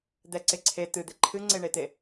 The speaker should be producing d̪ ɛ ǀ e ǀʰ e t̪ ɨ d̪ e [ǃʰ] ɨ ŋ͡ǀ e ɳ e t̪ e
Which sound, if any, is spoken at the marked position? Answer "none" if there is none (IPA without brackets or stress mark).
ǃʰ